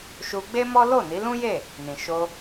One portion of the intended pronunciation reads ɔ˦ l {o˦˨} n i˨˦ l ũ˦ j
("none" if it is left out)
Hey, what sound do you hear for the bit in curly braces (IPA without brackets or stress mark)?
o˦˨